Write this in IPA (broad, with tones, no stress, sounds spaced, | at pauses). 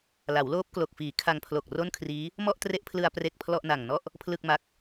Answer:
l a˩˦ w l oː˦˥ p̚ k l o˨˩ k̚ f iː˩˦ kʰ a˧ ŋ pʰ l o˨˩ k̚ r o˥˩ n kʰ r iː˦˥ | m ɔ˥˩ ʔ t r e˦˥ ʔ pʰ l ɯ˧ a̯ p r e˥˩ k̚ pʰ l ɔ˥˩ ʔ n a˨˩ ŋ n ɔ˥˩ ʔ | pʰ l ɯ˥˩ k̚ m a˦˥ k̚